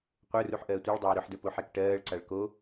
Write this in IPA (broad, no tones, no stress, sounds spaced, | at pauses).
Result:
qʷ ə˞ r u ħ ʔ ɜː tʷ ə˞ ɭ dˤ ɜː ɾ ʊ ħ d ə˞ p o ħ ɛ k ʈ ɜː ɭ ǀ a ɭ k o